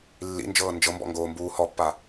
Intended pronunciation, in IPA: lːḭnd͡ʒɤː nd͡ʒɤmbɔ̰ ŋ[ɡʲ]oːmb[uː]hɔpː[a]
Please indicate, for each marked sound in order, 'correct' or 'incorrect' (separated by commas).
incorrect, correct, correct